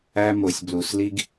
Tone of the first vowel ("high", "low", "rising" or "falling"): high